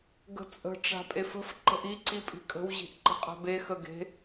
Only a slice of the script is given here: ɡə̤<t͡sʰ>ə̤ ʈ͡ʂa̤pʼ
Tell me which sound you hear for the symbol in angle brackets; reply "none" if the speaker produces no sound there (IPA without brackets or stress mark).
t͡sʼ